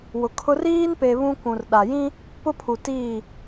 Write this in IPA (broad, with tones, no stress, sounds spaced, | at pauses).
w ʊ˨ kʰ ʊ˦ r iː˦ n p e˨ β ũ˦ kʷ ũ˨ r ɗ a˨ j ĩ˦ | p ʊ˦ pʰ u˨ t iː˦˨